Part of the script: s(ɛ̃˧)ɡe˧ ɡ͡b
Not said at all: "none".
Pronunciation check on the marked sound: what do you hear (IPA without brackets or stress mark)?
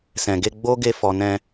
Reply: ɛ̃˨